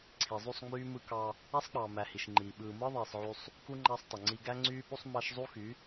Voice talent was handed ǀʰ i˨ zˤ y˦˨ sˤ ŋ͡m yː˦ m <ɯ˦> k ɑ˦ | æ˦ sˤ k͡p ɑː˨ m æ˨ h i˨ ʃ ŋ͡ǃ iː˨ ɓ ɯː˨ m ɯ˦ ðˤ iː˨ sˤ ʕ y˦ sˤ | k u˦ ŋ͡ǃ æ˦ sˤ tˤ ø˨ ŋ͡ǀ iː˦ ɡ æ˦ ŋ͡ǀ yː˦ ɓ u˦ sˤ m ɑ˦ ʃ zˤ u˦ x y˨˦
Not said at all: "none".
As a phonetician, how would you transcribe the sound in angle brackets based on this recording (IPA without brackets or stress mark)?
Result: ɯ˦